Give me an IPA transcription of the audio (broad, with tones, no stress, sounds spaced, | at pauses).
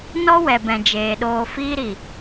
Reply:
n ɔ˦ w ɛ˨ b ɛ̃˨ d͡ʒ eː˨ ɗ oː˨ f iː˧ ɾ i˨